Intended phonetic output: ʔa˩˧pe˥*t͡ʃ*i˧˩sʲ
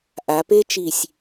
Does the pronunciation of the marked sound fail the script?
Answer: no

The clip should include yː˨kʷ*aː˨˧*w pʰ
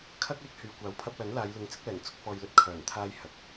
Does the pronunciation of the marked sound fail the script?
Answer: yes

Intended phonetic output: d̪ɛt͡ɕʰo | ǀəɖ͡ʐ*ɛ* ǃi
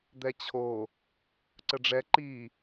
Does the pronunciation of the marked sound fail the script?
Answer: no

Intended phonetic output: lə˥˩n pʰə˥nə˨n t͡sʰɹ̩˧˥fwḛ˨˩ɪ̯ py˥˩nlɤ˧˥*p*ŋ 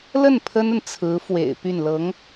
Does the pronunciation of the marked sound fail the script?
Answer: yes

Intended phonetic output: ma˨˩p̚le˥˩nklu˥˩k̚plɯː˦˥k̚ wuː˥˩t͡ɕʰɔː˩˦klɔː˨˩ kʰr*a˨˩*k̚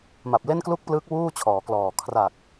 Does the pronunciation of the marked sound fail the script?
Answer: no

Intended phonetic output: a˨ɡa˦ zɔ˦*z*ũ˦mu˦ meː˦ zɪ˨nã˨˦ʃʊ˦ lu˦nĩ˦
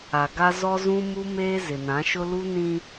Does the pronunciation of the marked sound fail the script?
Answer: no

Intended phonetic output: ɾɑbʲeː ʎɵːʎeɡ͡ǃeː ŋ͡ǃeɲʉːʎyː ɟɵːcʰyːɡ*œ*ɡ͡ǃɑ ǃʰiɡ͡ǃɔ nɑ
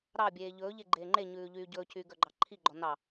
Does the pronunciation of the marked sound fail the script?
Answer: no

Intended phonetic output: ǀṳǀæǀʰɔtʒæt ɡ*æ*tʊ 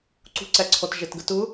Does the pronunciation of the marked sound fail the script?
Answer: yes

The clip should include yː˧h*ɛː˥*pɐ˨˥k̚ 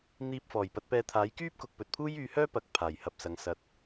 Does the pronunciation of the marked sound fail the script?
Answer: yes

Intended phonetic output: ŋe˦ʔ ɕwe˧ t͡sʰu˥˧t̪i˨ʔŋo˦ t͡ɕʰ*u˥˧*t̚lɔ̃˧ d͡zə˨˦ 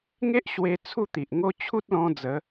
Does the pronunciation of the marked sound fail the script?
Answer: yes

